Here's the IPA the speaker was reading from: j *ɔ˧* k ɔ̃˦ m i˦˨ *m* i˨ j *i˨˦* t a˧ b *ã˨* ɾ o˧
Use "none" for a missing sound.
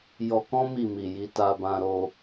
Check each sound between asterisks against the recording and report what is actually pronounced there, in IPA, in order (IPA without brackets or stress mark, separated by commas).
ɔ˧, m, i˨˦, ã˧